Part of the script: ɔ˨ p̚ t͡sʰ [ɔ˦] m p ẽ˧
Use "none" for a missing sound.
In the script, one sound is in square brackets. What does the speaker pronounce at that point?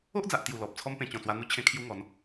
ɔ˦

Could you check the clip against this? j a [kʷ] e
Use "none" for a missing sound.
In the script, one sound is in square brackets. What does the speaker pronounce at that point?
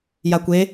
kʷ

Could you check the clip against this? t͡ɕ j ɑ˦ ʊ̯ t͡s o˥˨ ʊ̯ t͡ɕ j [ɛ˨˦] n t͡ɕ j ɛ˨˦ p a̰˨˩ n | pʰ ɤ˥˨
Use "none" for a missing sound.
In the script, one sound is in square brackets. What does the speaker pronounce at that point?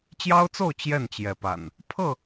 ɛ˥˨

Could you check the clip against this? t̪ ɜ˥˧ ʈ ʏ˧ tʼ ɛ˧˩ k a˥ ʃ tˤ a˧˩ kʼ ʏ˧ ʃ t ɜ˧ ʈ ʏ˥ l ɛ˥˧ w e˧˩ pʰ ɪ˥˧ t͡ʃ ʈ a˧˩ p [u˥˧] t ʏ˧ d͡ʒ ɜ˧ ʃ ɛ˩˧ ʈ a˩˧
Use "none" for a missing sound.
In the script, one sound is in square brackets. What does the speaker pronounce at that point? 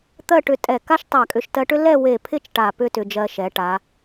ʏ˥˧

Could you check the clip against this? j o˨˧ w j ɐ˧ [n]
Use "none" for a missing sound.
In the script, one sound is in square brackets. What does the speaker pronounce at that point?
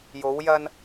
n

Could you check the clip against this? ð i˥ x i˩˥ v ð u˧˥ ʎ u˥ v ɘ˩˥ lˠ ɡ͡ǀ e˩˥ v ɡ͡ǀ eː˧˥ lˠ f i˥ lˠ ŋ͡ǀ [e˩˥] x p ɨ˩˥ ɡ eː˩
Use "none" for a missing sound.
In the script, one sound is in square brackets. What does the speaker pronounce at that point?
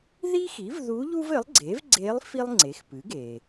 e˩˥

